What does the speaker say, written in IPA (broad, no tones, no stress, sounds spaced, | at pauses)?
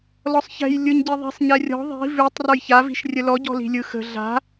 l ɔ sˤ ç ɛ̤ j lʲ ɯ ɲ ɟ i ðˤ i̤ sˤ ɲ ɛ rʲ ɔ̤ ðˤ i̤ v ʉ tˤ r ɔ j ç a v i̤ ʃ rʲ ə l ɔ ɟ ɔ̤ l i̤ lʲ ɯ x ə̤ ɮ a̤